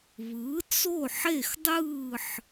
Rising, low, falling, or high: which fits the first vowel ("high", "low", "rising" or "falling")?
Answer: rising